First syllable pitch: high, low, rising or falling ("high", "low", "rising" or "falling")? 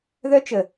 high